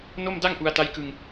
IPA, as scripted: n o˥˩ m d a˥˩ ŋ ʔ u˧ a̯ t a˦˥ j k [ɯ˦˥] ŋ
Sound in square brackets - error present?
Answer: yes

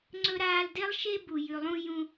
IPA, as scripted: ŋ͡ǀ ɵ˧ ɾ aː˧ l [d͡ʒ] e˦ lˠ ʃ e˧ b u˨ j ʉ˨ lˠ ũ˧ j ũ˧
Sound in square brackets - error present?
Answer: yes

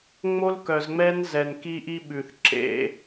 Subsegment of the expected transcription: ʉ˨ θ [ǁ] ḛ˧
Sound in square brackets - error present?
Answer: no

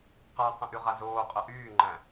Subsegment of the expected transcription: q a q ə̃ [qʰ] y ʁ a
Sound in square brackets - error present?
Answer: yes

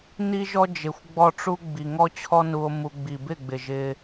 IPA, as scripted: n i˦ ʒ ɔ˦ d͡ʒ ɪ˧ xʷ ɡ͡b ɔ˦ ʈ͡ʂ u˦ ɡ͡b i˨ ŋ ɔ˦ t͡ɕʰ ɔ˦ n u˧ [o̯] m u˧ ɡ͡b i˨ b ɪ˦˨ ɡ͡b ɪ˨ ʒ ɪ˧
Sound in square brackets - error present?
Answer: no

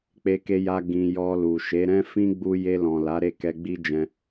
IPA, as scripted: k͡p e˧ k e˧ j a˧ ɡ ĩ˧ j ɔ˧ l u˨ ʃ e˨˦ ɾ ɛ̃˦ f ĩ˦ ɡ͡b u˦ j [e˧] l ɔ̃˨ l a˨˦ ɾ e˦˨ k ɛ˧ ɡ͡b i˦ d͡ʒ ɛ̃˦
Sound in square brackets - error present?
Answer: no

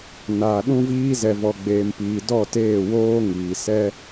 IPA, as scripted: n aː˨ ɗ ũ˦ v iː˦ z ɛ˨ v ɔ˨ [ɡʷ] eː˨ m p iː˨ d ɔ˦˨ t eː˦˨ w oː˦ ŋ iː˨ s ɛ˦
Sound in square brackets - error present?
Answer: yes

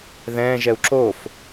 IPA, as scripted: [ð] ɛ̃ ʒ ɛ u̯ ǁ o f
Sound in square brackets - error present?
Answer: no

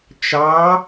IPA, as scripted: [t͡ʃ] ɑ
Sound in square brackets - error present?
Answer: no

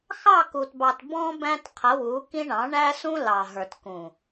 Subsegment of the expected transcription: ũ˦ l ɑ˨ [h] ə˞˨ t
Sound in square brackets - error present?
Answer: yes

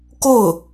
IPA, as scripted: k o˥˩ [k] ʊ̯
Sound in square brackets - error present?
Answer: yes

